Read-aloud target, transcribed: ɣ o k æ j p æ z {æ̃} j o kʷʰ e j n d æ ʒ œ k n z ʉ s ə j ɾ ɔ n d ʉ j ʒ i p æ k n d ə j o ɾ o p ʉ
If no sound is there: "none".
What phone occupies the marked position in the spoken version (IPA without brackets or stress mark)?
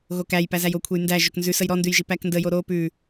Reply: æ